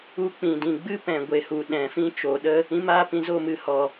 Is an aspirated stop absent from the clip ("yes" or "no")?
yes